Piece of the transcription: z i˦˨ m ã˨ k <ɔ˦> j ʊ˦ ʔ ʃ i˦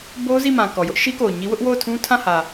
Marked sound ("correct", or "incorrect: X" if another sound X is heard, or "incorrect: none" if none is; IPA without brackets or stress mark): incorrect: ɔ˨